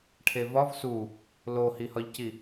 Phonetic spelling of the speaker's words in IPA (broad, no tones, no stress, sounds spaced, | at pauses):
ʈʰ e v ɒ v s u | l o h i h ɒ ʎ c i